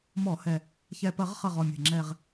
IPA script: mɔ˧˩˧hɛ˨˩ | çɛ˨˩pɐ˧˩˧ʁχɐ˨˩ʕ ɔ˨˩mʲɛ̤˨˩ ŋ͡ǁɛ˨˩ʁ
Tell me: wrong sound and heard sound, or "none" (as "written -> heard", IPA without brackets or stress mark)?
ʕ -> ʁ